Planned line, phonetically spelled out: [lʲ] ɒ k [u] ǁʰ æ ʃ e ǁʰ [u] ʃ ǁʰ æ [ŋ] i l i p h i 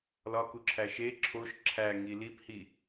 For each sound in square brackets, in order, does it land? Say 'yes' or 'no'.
no, yes, no, yes

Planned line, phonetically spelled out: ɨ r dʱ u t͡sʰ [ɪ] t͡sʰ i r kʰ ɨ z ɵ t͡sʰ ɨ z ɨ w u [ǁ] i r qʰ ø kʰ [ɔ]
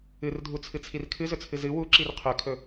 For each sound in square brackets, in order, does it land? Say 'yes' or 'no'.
no, yes, no

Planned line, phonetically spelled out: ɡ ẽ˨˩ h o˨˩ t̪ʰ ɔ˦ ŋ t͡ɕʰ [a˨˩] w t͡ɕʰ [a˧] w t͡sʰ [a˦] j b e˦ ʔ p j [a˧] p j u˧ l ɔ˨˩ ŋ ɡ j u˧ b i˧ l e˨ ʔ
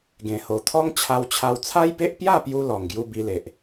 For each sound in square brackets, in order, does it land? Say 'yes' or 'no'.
no, yes, yes, no

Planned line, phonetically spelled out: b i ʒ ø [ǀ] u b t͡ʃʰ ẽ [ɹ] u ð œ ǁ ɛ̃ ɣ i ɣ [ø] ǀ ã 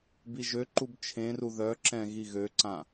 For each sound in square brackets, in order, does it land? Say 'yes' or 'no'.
no, no, yes

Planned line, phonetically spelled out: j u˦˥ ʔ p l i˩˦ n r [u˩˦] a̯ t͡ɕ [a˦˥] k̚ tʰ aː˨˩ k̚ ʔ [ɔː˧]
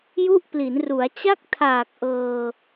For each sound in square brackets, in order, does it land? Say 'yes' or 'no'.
yes, no, no

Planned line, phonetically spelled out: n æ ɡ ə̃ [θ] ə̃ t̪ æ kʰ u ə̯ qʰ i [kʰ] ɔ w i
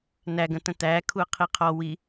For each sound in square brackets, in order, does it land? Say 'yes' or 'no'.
no, no

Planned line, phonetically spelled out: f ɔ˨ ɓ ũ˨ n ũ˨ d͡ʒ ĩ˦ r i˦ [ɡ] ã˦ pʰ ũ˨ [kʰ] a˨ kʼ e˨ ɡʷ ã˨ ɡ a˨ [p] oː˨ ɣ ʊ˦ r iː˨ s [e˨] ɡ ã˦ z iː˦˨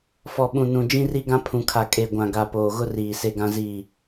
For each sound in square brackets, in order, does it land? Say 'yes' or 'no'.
yes, yes, yes, no

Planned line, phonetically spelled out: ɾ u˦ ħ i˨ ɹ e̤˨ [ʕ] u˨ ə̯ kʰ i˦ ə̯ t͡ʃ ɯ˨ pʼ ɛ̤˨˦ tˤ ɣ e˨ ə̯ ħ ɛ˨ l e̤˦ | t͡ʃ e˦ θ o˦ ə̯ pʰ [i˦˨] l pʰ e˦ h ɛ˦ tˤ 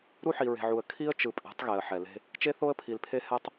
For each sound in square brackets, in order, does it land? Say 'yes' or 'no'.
yes, no

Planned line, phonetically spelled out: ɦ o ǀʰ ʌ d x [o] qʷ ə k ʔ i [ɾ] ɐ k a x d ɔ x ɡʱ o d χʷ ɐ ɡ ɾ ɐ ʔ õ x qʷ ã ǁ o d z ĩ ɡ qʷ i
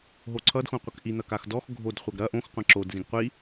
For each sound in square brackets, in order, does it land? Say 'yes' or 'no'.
no, no

